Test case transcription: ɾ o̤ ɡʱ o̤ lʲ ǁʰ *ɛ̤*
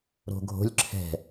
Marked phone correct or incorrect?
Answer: correct